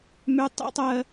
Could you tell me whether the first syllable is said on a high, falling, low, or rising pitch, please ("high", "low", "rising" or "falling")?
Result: high